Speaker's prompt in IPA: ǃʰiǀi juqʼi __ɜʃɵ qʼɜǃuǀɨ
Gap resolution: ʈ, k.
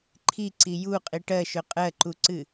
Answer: ʈ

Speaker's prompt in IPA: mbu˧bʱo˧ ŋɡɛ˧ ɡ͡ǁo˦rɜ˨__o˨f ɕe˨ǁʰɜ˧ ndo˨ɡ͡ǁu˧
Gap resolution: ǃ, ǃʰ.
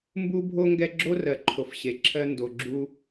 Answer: ǃʰ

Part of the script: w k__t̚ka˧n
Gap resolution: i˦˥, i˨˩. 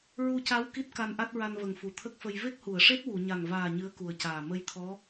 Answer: i˦˥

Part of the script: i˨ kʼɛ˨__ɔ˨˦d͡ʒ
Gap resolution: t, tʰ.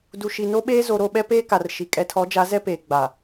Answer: tʰ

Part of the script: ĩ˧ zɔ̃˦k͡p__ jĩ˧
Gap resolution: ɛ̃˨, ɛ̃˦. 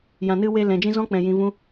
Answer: ɛ̃˨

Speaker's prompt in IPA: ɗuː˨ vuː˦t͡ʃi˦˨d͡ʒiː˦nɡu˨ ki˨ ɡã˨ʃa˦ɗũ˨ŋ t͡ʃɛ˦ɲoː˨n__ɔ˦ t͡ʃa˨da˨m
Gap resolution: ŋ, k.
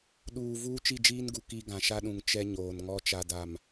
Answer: ŋ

